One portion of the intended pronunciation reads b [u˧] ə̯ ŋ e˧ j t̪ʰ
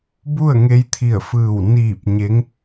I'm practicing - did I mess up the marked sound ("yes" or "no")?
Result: yes